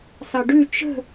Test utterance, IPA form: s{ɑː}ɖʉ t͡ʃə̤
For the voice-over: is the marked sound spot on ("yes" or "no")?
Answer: no